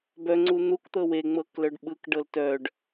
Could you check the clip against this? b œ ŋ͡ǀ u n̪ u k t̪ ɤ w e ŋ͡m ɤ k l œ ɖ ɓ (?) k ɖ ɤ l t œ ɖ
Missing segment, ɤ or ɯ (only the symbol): ɯ